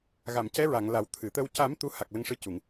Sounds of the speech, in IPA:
ɣ a˨˩˨ m c ɛ˧˥ ɹ a˨˩˨ ŋ l a˨˩˦ w t̪ʰ ɨ˨˩˨ t̪ ə˧ w c a˨˩˦ m t̪ u˧˥ h a˨˩ k̚ l ə˧ ŋ ʂ ɨ˧ c u˨˩˨ ŋ

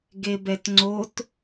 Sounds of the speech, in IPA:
ɡ e b ɛ t ŋ͡ǀ o t

